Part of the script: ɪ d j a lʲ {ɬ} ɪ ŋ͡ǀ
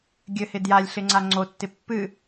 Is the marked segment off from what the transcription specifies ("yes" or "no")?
no